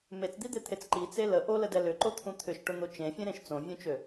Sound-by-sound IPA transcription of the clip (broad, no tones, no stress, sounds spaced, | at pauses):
m e t͡s d̪ i d̪ e t̪ʰ e t͡s ǃ i t͡s e l ə ʔ o l ə d ɛ l ʏ ǃ o t̪ʰ ũ t̪ʰ ʏ ʃ ʈ ʊ n̪ o t͡ʃ ẽ fʲ ẽ ɾ ẽ ʃ t͡s õ vʲ ũ t͡ʃ ø